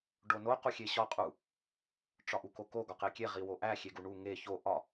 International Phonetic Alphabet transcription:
ɖ o n o q u xʲ e ɕ ɒ qʼ u | ʈ͡ʂ ɒ ʔ u k o k o ɡ ɒ q e kʲ e ʁ i w o ʔ æ xʲ e ɡ u ɳ u ŋ e ç o ʔ ɒ

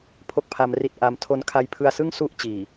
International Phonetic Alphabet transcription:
pʰ o˥˩ k̚ pʰ a˧ m r i˦˥ t̚ ʔ a˧ m tʰ o˧ n kʰ a˧ j pʰ ɯ˧ a̯ s ɯ˥˩ ŋ s u˦˥ ʔ t͡ɕ iː˨˩

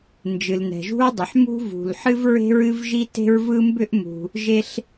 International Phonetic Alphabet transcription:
n d͡ʒ ɨ˩ l n ɛ̤˩ ʒ ṳ˥ ɹ dˤ ʏ˩ ħ m ṳ˥ v ṳ˩ l ħ ɨ˥ v ɹ e̤˥ ɹ ɨ˥ v ʒ i˥ t e̤˥ ɹ v ɯ˥ m b ʏ˥ ʔ m ṳ˩ | ʒ e˥ ɬ

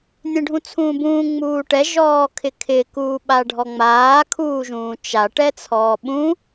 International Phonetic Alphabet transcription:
nʲ ẽ ɖʱ ũ t͡sʰ ũː b ũː ŋ͡m uː ʈ ɛ ʒ ɔː kʰ ɪ kʰ ɪ k uː ɓ a ɖʱ ɔ ŋ͡m aː kʰ uː ʒ ũː t͡ʃ a ʈ ɛ t͡sʰ ɔː ɓ ũ

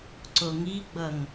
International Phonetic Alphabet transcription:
ǀ o ŋ i ɡ͡b ʌ ŋ

